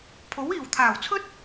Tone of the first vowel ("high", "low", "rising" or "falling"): rising